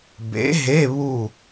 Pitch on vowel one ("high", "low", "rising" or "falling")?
rising